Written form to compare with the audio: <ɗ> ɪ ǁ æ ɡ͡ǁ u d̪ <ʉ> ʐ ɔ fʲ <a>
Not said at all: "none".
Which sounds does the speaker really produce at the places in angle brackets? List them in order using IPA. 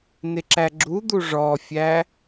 n, u, æ

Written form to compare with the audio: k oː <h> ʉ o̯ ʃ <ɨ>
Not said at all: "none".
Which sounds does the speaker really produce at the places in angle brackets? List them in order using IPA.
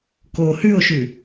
h, ʉ

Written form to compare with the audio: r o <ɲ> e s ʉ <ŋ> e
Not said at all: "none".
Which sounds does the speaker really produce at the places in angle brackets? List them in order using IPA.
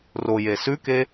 j, k

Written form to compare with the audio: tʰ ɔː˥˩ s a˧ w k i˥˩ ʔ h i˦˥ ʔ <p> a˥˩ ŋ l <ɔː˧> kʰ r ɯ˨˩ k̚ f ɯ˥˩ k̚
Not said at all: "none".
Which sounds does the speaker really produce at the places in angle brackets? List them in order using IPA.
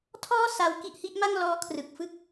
m, ɔː˦˥

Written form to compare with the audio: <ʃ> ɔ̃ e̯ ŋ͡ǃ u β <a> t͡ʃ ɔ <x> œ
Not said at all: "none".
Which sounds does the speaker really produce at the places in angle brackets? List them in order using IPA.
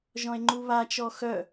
ʒ, a, x

